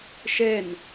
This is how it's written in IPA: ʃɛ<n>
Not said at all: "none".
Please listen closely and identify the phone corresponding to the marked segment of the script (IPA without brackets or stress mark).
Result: n